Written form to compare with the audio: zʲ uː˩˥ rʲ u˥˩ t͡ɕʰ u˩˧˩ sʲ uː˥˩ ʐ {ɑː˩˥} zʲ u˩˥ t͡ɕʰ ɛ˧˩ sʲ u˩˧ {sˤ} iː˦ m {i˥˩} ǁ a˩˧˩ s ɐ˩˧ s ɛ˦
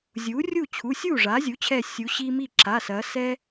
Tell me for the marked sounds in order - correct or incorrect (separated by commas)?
incorrect, incorrect, correct